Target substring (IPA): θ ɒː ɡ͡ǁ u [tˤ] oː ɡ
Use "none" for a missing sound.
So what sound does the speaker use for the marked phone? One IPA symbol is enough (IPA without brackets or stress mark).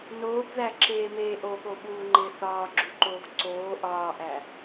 ǃ